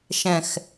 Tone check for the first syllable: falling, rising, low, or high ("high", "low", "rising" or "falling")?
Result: low